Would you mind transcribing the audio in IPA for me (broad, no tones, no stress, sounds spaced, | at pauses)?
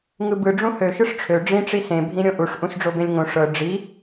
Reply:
ŋ ɯ b ɯ ɖ͡ʐ ũ h ø ʃ ɯ ʂ ʈ͡ʂʰ ø ɖ͡ʐ ĩ ʈ͡ʂ i s ẽ bʱ ĩ ɾʲ õ ʔ u ʂ ʔ ũ s ɖ͡ʐ o b ẽ lʲ ŋ õ ʂ ɤ ɖ͡ʐ i